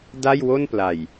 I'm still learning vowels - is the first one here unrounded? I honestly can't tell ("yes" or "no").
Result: yes